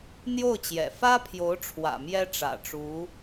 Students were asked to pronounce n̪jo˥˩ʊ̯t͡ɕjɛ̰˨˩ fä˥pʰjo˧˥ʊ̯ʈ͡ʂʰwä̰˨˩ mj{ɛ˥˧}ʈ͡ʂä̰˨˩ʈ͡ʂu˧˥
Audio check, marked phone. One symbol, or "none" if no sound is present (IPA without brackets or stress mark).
ɛ˥